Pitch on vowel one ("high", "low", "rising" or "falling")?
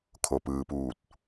low